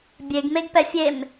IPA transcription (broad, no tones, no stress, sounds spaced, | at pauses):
bʲ e ɡ m e ɡ p ɛ fʲ e m